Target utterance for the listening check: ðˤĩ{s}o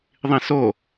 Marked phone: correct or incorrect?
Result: correct